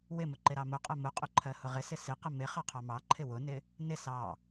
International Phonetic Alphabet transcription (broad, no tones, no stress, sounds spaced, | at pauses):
w ɪ m ʊ ǃ ɪ ɾ ɑ m ʊ qʼ ɜ m ʊ qʼ ʊ ǃʰ ɜ h ʊ ʁ ɪ s ɪ s ɪ q ə m ɪ χ ɑ qʰ ɑ m ɑ ǃʰ ɪ w ʊ n ɪ | n ɪ s ɑ